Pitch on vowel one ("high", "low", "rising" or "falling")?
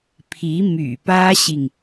rising